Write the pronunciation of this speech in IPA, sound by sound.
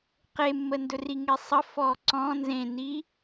q e mː ə n d ɵ r i ŋ e sˤ ə f ɔ ǀ ɔ̃ n z ẽ n i

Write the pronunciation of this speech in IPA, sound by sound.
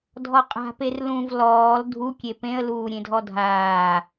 dʱ ɔ qʼ a̤ p e r l ũ v l ɔː l dʱ u kʲ e p ẽ ə̯ l uː ɾʲ ẽ dʱ ɔ dʱ aː

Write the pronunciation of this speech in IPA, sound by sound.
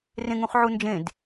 r ẽ ŋ ũ χ ʕ u n d͡ʒ ẽ d

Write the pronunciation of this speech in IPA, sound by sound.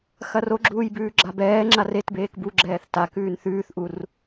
x ɐ r o ɡ͡ǁ uː j b ʉː ɡ͡ǁ a b ɛː ŋ͡ǁ a r e t b eː k b u ɡ͡ǁ ɛː θ t a k ʉː n θ ʉː θ ʔ u r

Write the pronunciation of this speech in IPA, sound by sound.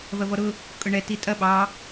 v ɐ v ɔ ɾ ʊ | kʼ ʊ ɳ ɛ t i tʼ ɐ ɓ ɑ

